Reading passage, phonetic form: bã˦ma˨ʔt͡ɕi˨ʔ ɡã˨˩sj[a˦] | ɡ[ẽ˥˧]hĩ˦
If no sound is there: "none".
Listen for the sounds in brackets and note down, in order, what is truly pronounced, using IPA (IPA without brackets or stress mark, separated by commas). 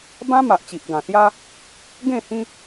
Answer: a˦, ẽ˥˧